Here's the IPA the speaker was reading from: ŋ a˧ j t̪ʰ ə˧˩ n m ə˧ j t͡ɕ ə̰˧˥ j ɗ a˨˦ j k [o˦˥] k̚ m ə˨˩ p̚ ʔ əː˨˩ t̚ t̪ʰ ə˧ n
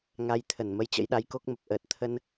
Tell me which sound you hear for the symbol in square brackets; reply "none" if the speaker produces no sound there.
o˦˥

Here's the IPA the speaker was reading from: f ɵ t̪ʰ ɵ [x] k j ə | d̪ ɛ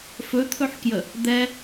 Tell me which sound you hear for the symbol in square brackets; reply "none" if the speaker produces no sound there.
ħ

